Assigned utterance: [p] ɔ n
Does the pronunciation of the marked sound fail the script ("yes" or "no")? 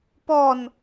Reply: no